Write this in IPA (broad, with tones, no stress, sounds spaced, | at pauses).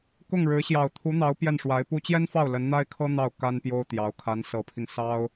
k ʊ˥˩ ŋ ɻ ɻ̩˧˥ ɕ j ɑ˨˩ ʊ̯ t̪ʰ u˧˥ n̪ ɑ˧˥ ʊ̯ p j ɛ˥˩ n ʂ w a˧˥ ɪ̯ p u˥ t͡ɕ j ɛ˥ n f ɑ˥˩ ʊ̯ l ə˧˥ n n̪ a˥ ɪ̯ kʰ ɤ˥ n̪ ɑ˥˩ ʊ̯ k a˥ n p j o˥ ʊ̯ t̪ j ɑ˧˥ ʊ̯ kʰ a˧˥ n s ɤ˧˥ pʰ i˧ ŋ s ɑ˥ ʊ̯